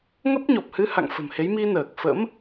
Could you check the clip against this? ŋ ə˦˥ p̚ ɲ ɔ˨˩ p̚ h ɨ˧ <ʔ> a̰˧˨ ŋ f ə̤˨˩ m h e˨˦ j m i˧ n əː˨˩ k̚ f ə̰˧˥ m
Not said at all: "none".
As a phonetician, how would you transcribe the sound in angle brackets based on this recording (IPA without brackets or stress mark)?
h